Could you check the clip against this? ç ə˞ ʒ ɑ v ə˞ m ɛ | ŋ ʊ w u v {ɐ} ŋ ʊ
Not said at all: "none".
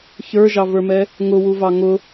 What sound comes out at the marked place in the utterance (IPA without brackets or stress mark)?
ɑ